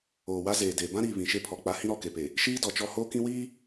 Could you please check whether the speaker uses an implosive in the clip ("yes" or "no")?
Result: no